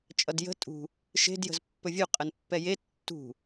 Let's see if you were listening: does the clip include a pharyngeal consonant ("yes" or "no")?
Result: no